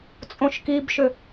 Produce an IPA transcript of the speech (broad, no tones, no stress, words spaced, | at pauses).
t͡sʼõʃkibʃʏ